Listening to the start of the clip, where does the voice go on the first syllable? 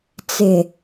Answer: low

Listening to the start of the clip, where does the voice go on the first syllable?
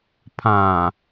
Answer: low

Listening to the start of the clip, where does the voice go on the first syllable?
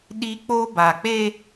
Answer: high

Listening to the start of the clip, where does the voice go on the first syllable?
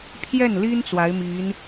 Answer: falling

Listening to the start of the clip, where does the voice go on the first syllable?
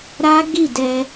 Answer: high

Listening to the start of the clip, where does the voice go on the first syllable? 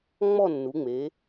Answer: falling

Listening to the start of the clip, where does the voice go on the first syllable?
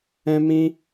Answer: high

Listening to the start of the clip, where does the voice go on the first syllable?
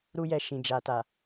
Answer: high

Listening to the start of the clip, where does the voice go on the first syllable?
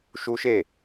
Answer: high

